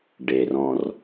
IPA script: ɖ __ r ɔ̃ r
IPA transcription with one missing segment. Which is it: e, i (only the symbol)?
e